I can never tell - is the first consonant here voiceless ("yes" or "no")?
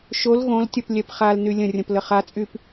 yes